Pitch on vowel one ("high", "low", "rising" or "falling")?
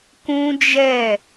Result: high